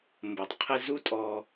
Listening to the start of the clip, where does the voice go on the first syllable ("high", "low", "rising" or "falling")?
low